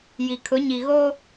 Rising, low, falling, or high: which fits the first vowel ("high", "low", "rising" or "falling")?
low